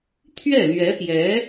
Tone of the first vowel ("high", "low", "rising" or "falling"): falling